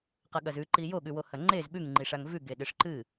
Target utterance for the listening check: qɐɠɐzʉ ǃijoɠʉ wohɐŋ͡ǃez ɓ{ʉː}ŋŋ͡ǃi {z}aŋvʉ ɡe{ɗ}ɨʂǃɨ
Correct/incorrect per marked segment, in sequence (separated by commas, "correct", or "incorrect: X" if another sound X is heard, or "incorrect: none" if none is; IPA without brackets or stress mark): incorrect: ʉ, incorrect: ʂ, correct